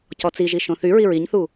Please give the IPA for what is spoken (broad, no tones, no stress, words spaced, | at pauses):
cɔt͡siʒi ʃõθyɹi ɹiɲθu